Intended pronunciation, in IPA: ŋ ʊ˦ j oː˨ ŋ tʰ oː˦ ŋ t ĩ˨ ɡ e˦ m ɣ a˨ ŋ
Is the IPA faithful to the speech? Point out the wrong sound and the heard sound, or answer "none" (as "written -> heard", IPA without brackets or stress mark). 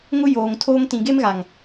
none